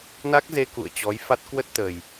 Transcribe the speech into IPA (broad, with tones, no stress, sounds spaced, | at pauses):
n a˦˥ k̚ z e˧ k ṵ˧˨ ə̯ t͡ɕ ɔ˨˦ j f a˦˥ t̚ k w ə˦˥ t̚ t̪ ə˨˩ j